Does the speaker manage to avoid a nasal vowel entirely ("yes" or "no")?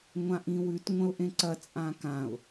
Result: no